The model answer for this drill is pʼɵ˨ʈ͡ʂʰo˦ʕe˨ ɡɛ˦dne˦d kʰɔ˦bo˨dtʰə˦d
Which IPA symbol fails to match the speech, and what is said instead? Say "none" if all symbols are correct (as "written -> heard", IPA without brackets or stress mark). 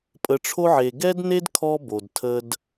ɵ˨ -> ə˨